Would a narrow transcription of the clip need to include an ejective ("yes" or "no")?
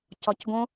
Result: no